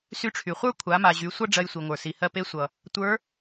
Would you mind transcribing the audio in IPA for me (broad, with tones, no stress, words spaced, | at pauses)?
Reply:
sy˧ʈ͡ʂʰy˩χʷə˞˥ kʷʰa˩˧ma˩ ʑy˩˧ sʷʌ˥ɖ͡ʐɜ˧jsʷi˩ŋʷə˞˩ si˩hɜ˧pe˧˥ sʷʌ˩ | tʷə˞˧˥